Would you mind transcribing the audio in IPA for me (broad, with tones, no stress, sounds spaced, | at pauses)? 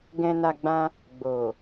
ɡ ɛ̃˧ n a˧ ɡ͡b ã˧ | ɡ͡b o˨